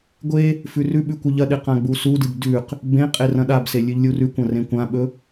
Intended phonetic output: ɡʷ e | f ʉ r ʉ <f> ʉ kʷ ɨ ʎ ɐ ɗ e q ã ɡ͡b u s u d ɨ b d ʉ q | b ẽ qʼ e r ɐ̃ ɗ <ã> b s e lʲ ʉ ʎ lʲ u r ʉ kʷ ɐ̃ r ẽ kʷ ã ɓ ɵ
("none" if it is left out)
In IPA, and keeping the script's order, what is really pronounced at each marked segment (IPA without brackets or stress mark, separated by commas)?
ɓ, a